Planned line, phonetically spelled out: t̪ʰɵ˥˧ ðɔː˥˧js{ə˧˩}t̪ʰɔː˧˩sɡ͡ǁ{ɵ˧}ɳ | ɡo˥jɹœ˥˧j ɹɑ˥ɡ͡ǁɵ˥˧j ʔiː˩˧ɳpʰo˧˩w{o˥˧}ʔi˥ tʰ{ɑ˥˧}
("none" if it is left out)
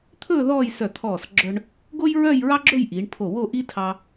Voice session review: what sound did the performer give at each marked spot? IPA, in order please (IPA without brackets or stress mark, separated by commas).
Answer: œ˧˩, œ˧, o˥˧, ɑ˧